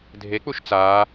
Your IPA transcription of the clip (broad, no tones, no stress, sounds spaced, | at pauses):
dʱ e k͡p u ʃ t͡s aː